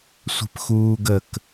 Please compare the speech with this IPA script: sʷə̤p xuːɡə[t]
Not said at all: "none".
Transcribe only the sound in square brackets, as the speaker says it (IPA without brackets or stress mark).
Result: k